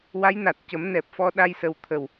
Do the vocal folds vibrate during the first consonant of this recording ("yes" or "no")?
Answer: yes